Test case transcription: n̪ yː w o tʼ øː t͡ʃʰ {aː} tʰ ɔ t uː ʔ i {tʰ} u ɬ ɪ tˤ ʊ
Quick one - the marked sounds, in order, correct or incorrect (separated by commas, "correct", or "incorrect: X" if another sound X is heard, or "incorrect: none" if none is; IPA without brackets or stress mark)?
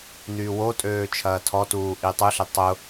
incorrect: ɐː, incorrect: tˤ